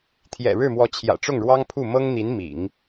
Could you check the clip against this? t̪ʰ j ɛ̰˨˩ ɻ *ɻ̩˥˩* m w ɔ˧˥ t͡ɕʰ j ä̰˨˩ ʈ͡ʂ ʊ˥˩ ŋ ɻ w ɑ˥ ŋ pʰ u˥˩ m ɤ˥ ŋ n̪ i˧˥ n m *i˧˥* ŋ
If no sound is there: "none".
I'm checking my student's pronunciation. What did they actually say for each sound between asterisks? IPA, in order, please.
ɻ̩˥˩, ḭ˨˩˦

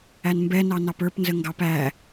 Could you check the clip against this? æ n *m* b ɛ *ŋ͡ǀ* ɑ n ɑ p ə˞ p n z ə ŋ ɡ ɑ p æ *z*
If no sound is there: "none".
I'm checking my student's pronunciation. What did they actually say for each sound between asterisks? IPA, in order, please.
m, n, none

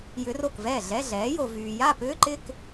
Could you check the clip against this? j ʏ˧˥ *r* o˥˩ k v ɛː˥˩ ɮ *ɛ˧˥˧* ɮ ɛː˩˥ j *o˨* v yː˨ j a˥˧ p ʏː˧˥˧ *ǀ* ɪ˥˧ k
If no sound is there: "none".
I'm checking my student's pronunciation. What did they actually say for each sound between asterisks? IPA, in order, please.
r, ɛ˧˥˧, o˨, ǃ

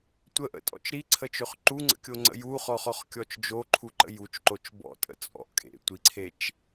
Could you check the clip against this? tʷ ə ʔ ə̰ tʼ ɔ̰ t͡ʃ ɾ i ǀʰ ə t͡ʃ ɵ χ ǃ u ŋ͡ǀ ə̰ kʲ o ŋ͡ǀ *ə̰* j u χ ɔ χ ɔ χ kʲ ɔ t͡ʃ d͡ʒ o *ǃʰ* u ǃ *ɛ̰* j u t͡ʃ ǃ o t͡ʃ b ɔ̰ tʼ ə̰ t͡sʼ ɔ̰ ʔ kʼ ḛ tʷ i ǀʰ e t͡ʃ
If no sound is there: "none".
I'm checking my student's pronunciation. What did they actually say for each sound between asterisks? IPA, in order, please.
ə̰, ǃʰ, ə̰

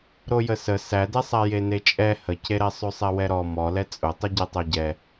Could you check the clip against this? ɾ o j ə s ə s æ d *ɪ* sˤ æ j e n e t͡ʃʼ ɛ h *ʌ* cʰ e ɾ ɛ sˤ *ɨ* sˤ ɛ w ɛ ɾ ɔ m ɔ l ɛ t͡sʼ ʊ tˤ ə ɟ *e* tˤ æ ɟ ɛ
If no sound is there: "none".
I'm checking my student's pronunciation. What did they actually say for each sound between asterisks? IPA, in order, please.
ɛ, ə, ʉ, e

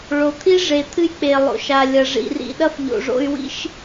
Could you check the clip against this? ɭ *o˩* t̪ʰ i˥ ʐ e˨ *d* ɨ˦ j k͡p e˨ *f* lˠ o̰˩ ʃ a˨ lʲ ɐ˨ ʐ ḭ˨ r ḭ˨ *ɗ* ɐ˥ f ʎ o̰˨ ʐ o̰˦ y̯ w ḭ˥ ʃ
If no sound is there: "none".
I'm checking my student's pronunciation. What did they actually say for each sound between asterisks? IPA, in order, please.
o˨, t̪ʰ, none, ɗ

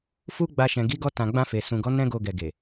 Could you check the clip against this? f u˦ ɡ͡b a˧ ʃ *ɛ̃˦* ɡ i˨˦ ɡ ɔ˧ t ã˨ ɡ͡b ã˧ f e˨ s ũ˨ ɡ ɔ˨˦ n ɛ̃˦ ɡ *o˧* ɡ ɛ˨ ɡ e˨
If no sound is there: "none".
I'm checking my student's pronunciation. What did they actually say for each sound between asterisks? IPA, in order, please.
ɛ̃˨, o˧

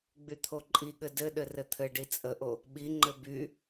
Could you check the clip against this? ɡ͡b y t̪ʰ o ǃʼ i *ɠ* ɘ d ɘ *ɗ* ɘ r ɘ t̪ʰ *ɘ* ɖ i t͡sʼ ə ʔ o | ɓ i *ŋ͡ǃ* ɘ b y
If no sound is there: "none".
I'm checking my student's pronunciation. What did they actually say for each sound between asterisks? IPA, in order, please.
ɠ, ɗ, ɘ, ŋ͡ǃ

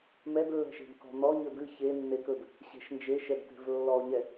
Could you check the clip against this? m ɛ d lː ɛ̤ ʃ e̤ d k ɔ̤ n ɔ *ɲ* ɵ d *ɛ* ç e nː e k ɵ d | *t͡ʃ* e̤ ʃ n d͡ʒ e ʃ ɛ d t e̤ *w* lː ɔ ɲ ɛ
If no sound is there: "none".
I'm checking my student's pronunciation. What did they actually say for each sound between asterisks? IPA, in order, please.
ɲ, ɨ, ɕ, v

